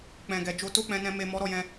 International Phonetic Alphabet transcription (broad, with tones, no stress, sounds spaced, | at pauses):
k͡p ɛ̃˨ ɡ ɛ˨ d͡ʒ o˧ t o˦ k͡p ɛ̃˧ n ɛ̃˧ m e˨ m ɔ˨˦ ɾ ɔ˦˨ j ɛ̃˧